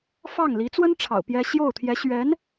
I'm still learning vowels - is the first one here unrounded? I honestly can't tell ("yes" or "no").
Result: yes